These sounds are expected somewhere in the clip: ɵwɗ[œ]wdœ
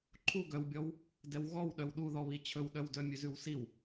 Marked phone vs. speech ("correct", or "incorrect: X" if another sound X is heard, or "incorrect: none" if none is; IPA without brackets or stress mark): correct